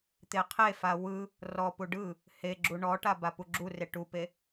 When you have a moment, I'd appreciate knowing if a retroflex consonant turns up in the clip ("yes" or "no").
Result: yes